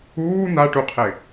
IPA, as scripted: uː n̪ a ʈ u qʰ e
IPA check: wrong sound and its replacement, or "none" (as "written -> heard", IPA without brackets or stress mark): none